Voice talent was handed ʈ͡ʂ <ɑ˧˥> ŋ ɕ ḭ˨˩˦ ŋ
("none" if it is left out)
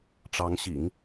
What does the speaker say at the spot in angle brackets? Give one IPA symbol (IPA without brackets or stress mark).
ɑ˧˥